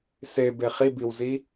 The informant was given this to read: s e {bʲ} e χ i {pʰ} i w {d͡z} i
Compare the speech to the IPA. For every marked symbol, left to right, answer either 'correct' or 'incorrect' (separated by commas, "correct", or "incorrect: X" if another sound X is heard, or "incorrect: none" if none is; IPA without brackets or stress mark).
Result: incorrect: b, incorrect: b, incorrect: z